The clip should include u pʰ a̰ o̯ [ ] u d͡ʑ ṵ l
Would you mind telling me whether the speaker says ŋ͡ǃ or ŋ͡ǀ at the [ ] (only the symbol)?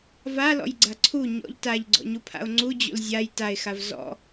ŋ͡ǀ